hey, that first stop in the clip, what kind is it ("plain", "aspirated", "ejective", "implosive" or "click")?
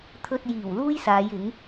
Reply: aspirated